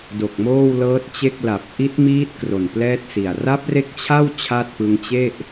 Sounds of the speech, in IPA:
do˨˩k̚moː˥˩wlɤː˦˥t̚t͡ɕe˥˩k̚ la˨˩p̚ʔi˦˥t̚ miː˦˥t̚ kro˨˩nplɛː˥˩t̚si˨˩a̯ ra˦˥p̚re˦˥k̚t͡ɕʰa˥˩w t͡ɕʰa˥˩t̚pɯ˧ŋ t͡ɕe˥˩ʔ

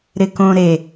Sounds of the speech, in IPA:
ɾɪkõ ɾe

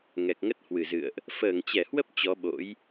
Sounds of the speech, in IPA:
ŋɛ˨˩k̚ŋə˦˥t̚hwɨ˧˩zɨ̰˧˨ə̯ʔ | fəː˧˩ŋt͡ɕɛ˧˩hwə˦˥p̚ t͡ɕɔ˨˦ɓo̰˧˥j

